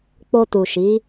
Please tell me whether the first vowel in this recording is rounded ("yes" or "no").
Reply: yes